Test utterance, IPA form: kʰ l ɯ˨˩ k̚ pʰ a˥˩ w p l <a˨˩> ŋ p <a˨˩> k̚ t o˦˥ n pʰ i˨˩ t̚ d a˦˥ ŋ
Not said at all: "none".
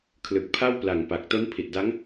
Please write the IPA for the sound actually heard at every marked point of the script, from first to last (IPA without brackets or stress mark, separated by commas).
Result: a˨˩, a˨˩